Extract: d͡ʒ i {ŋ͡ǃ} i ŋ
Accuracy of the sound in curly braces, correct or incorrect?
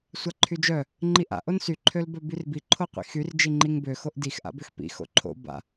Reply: correct